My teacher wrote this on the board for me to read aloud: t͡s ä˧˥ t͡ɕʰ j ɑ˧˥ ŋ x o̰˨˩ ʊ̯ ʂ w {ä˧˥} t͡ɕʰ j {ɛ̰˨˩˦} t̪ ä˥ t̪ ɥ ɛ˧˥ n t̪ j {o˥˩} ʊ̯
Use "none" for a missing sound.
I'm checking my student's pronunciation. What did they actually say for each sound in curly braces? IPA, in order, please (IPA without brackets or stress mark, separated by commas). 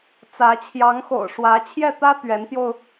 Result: ä˧˥, ɛ˥˩, o˧